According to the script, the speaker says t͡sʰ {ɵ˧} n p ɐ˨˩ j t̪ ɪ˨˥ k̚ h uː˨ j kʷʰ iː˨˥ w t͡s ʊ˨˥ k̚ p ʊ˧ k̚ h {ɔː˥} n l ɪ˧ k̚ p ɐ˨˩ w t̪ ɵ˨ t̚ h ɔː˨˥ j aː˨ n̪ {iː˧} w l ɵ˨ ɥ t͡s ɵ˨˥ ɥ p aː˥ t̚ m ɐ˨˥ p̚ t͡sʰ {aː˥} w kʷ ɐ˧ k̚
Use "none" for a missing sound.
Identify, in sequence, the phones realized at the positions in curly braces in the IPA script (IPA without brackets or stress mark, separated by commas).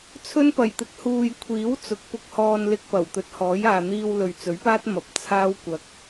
ɵ˥, ɔː˧, iː˧, aː˥